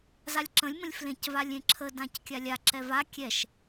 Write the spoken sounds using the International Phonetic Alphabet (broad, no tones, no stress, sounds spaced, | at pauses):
z a lʲ ǁ ə̃ lʲ m ə̃ lʲ f l ẽ c v a lʲ ẽ ǁʰ ə d ã c kʲ a lʲ a ǁ ɛ v a kʲ ɛ ʃ